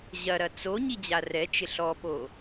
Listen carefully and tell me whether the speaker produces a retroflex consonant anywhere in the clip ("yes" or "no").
no